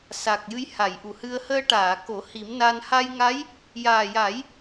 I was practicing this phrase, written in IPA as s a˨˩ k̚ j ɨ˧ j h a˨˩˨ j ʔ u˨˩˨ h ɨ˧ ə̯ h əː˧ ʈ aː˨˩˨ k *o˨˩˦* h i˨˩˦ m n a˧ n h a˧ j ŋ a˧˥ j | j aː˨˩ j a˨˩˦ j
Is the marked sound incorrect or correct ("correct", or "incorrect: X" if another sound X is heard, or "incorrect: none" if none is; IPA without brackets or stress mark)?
correct